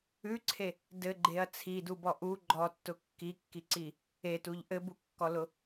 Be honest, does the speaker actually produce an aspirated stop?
yes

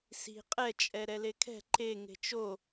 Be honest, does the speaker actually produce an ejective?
yes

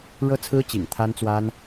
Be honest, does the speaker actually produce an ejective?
no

